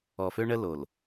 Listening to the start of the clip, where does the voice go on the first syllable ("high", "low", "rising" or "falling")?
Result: low